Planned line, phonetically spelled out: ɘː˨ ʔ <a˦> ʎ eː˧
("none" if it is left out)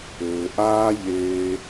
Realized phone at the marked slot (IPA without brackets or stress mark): aː˦